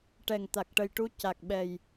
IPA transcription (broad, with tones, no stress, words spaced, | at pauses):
ʈɛ˨˩ŋt̪a˨˩k̚ʈə˨˩jʈu˧ ca˨˩k̚ɓɛ˨˩j